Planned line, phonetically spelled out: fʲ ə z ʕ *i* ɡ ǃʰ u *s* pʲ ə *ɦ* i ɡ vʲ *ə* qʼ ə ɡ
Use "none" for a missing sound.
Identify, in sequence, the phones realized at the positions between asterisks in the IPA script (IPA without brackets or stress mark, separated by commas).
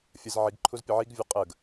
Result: i, z, ʕ, ə